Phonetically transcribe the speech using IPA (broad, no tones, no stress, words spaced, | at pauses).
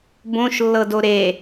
bõʃ lːɤdoɾe